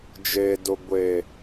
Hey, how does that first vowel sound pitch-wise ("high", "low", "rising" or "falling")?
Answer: low